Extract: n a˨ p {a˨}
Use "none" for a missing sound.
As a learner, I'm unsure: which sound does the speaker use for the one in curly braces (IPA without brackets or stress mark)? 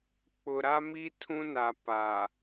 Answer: a˨